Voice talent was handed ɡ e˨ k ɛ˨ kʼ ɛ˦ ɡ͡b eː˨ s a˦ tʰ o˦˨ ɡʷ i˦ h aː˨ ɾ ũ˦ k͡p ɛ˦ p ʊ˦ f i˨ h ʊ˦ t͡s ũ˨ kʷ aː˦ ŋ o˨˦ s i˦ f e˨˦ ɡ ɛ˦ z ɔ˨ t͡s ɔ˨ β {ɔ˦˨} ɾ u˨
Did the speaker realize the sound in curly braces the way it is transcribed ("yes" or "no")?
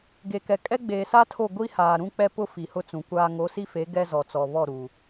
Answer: yes